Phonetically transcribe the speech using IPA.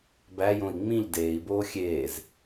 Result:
b æ j õ i̯ ŋ͡m ĩ ʎ d eː i̯ b oː xʲ eː z

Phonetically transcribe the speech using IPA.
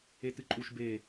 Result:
e t ɨ ǃʼ u ʃ b e

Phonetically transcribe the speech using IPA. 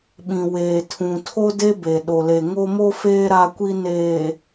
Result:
ɓ ĩ˨ w eː˨ tʰ ũ˨ tʰ o˦ d e˦ b e˨ ɗ o˨ l e˨ ŋ o˦ m o˦ f eː˦ ɾ a˦ kʷ i˦ n eː˨

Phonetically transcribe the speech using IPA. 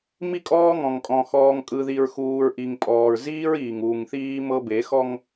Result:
m i˦ kʼ ɔː˦ ŋ ɔ̃˨ ŋ kʼ ɔ̃˨ x ɔː˨ ŋ kʼ ɯ˨ ð i˨ ɹ x uː˨ ɹ ʔ i˨ ŋ pʼ ɔː˨ ɹ z iː˦ ɹ iː˨ ŋ uː˨ ŋ θ iː˦ m ɤ˦ b e˨˦ x ɔ˦ ŋ

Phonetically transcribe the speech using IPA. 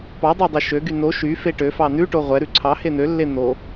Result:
p ɑ dˤ æ dˤ e ʃ ø ɡ y n o ʃ y f e ʈ ø f ɑ n ʉ ʈ o ʁʷ ɛ ɾ ʉ ǀʰ ɑ h e n̪ ø lː e n̪ o

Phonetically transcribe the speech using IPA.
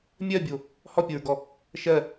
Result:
mʲ ɜ bʲ o | h ɔ pʲ o ɹ ɡ ɔ | ʃ ɜ

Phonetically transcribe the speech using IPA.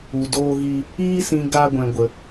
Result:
u˨ d oː˦ ɣ i˦ | iː˦ s ĩ˧ ɡ a˦ ɡʷ ɛ̃˧ ɡʷ ə˧

